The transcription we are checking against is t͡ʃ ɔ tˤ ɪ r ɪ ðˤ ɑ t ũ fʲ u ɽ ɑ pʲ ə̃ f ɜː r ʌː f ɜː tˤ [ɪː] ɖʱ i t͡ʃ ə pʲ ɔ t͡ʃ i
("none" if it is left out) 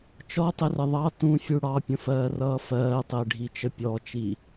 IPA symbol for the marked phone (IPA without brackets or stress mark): ɪː